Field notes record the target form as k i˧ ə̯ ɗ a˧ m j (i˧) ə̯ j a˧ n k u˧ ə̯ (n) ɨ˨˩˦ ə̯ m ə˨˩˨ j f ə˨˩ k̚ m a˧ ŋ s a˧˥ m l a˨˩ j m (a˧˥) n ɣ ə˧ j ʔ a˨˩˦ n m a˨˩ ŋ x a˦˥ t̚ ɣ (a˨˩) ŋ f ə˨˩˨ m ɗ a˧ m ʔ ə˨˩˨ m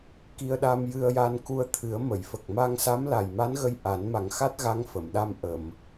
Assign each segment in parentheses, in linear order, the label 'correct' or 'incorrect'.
incorrect: ɨ˧, incorrect: t̪ʰ, correct, incorrect: a˧˥

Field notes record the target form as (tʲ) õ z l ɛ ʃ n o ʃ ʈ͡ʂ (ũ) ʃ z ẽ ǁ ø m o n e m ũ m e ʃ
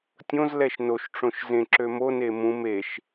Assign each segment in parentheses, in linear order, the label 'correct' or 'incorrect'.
correct, incorrect: õ

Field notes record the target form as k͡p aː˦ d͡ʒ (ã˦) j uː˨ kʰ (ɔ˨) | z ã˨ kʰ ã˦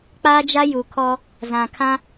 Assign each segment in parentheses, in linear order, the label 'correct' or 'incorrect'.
incorrect: a˦, incorrect: ɔ˦

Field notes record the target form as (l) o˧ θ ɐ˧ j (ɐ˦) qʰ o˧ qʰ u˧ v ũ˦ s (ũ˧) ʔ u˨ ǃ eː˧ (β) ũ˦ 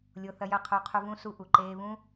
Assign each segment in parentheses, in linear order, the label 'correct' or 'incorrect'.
incorrect: lʲ, incorrect: ɐ˧, incorrect: u˧, correct

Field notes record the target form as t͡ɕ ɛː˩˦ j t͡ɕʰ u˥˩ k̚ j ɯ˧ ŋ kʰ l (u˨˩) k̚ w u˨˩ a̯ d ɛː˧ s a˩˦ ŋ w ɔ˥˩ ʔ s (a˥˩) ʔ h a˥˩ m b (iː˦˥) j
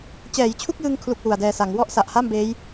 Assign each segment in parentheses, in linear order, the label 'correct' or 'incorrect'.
correct, incorrect: a˨˩, incorrect: eː˦˥

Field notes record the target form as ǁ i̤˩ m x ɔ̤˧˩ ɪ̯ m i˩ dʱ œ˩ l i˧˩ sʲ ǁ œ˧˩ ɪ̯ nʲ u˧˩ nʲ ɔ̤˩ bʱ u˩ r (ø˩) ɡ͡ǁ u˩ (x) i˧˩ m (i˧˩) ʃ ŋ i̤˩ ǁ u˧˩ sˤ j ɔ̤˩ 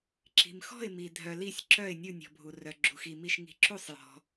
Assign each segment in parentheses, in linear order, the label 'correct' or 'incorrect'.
incorrect: œ˩, correct, correct

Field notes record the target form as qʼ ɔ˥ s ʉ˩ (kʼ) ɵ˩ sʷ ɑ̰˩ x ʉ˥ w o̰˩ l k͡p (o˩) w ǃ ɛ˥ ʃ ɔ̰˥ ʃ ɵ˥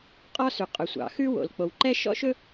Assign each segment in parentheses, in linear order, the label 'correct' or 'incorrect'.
incorrect: qʼ, correct

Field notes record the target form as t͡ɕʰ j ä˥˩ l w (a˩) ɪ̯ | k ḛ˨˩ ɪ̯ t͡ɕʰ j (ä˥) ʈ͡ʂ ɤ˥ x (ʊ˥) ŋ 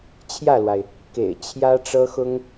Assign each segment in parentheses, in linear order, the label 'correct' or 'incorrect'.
correct, correct, correct

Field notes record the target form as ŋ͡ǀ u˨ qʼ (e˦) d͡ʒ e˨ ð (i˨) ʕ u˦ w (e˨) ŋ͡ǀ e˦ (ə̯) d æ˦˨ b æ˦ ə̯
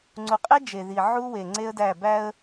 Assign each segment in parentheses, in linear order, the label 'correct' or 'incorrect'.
correct, correct, correct, correct

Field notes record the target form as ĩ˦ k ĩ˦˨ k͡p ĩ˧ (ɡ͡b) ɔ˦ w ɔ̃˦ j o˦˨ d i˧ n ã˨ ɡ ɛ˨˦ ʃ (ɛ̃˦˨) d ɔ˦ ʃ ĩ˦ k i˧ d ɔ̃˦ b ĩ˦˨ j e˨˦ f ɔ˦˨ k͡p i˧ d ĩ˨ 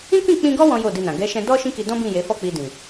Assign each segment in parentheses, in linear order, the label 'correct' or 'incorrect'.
incorrect: ɡ, incorrect: ɛ̃˧

